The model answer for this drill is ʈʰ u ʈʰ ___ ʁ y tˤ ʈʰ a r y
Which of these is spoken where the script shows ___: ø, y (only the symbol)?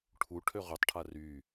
ø